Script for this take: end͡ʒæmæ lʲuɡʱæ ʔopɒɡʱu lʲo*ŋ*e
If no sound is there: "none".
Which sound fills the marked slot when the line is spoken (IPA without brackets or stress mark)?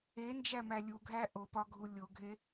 ɡʱ